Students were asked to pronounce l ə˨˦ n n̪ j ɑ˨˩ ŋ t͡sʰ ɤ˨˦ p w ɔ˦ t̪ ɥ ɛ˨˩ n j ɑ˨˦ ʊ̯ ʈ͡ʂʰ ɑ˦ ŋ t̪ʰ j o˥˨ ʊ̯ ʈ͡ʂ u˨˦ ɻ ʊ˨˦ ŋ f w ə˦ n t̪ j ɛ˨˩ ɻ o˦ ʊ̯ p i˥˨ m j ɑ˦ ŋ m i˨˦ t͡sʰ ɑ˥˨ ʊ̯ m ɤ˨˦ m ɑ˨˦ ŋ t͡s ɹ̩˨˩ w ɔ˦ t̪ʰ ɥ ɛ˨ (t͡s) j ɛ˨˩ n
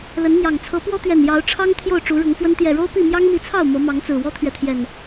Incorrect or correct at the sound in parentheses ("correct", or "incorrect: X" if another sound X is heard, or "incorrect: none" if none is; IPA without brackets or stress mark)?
incorrect: t̪ʰ